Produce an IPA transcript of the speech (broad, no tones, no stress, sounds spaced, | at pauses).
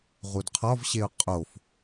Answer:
ʁ u d qʰ ɒ v ɕ e ʊ̯ qʼ o f